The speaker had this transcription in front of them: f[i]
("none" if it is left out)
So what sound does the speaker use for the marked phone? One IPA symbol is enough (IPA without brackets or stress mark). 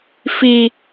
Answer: i